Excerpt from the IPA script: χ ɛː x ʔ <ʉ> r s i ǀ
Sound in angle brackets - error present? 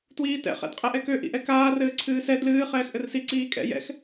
yes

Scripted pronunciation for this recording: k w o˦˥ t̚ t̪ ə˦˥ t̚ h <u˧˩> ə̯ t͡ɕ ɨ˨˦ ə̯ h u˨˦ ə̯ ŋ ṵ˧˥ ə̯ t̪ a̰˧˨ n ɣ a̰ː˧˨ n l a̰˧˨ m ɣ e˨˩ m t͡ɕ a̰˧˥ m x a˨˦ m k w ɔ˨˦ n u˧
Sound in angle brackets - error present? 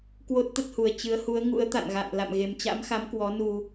yes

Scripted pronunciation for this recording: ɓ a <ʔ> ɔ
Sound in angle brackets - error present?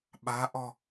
no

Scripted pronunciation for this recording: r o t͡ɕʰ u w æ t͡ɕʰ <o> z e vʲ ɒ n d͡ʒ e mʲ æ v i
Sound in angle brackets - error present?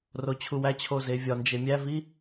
no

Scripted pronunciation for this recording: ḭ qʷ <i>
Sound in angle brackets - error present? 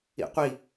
no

